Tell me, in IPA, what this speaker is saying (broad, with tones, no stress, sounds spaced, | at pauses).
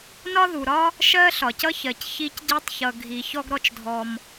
n ɒ˥ ð u˩ ɾ ɒ˥ | ʃ ɜ˥ ɬ ɒ˩ c ʌ˥ ç ɜ˩ c ç i˧ c ɟ i˧ tˤ ç ʌ˩ ɡʱ i˩ ç ɔ˧ ɡ ɾ ɔ˧ t͡ʃ dʱ ɔ˩ m